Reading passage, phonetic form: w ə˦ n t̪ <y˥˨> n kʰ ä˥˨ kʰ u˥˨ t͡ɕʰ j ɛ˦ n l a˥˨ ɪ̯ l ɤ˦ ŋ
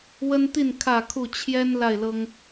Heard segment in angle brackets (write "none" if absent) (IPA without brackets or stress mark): i˥˨